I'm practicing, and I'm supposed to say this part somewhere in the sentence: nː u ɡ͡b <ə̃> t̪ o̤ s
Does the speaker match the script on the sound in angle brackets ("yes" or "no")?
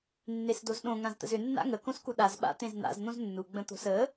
yes